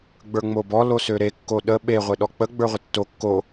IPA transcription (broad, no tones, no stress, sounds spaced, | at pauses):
ɡ͡b ə˞ ŋ͡m o b ɔ l o s ø ɾ e kː o ɗ ə ɓ e ʁʷ e ɗ ɔ k͡p ə ɡ͡b ə˞ ʁʷ ə tː o kː o